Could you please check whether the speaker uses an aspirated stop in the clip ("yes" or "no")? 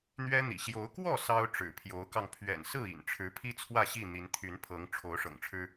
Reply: yes